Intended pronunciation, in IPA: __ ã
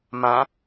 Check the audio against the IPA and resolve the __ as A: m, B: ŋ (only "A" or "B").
A